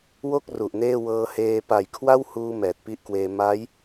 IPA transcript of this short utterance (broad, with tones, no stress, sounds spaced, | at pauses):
w o˥˩ k̚ r u˨˩ ʔ n eː˥˩ w ɤː˧ h eː˧ p a˩˦ j kʰ w a˥˩ w h uː˧ m ɛː˨˩ t̚ p i˦˥ ʔ k w eː˧ m a˦˥ j